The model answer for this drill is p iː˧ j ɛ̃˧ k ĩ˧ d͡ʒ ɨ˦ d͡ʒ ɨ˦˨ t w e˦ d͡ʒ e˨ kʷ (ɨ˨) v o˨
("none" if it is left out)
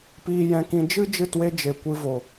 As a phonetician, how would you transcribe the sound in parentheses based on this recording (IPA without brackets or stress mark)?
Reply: ɨ˧